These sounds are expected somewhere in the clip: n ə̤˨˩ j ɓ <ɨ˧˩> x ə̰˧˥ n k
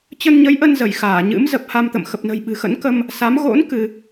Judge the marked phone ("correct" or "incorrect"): incorrect